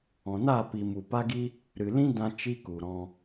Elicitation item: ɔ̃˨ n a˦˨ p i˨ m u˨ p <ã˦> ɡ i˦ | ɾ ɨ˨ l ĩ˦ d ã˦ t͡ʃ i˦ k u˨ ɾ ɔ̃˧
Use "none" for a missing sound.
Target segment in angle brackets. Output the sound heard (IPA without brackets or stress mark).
a˦